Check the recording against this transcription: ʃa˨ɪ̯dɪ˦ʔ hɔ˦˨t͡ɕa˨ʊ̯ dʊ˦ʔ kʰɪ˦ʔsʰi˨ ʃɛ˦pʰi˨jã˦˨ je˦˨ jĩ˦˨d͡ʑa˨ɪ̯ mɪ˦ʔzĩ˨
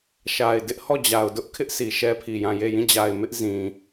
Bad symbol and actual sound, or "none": t͡ɕ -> d͡ʑ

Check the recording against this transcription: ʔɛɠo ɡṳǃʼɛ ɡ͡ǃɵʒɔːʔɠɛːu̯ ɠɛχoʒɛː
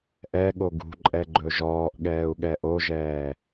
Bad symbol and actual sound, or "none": χ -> ʔ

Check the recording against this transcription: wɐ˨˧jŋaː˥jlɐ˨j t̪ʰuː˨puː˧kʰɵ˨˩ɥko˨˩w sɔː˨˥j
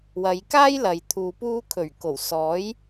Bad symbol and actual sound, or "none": ŋ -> k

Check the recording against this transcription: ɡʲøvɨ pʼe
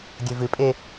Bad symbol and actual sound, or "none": ø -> e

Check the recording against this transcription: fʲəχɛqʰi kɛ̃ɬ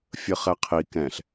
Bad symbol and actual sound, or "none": none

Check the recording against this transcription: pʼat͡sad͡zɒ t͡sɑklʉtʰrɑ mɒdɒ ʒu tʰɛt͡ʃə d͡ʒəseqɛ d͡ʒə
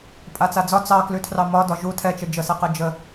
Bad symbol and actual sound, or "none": none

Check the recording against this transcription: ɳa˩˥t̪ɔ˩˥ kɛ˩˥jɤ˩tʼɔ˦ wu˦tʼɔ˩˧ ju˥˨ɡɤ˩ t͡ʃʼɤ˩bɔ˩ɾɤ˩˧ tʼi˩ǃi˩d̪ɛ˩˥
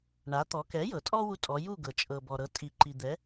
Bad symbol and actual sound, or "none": none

